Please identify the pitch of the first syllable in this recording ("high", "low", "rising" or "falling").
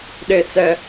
low